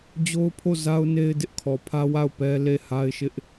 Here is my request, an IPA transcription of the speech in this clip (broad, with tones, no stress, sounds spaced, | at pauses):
d͡ʑ o˦ ʊ̯ pʰ o˦˨ z a˦ ʊ̯ n e˦ ɪ̯ d ɪ˦ ʔ kʰ ɔ˨ pʰ ä˦ w a˦˨ ʊ̯ p ɛ˦ l e˦˨ h a˦ ɪ̯ ʃ ɪ˦ ʔ